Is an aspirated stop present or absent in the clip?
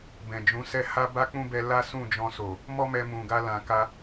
absent